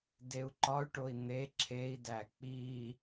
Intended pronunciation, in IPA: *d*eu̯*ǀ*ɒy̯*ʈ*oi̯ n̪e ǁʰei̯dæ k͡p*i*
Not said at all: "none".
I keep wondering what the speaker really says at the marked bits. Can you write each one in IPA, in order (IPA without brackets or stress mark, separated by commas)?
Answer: d, ǃ, ʈ, i